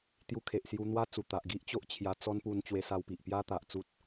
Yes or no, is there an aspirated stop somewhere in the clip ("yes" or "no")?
yes